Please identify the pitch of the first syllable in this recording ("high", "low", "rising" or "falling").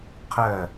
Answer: falling